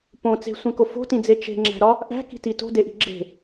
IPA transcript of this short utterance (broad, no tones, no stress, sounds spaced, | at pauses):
p õ t͡s e̤ sʷ ẽ k o f o̤ t ĩ d͡z e t͡ʃ e̤ ŋ͡ǁ æ̤ ɾ ɒ | ʔ æ̤ k i̤ t i t o̤ d e ʔ i̤ ɡ͡ǁ e̤